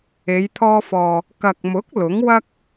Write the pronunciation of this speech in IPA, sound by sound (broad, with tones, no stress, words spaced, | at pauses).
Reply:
e˨˧jt̪ʰɔː˧fɔː˨ | kɐ˨k̚mʊ˨˥k̚ lʊ˨˥ŋwɐ˥k̚